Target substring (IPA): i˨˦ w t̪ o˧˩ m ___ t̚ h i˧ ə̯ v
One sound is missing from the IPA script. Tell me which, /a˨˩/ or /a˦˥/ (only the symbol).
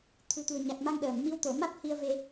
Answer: a˦˥